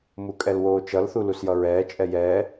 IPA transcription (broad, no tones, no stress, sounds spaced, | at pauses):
m u kʼ ɛ l w oː t͡ʃ ʌ l θ u l u s j ʌ ɹ ɛː t͡ʃʼ ɛ j ɛː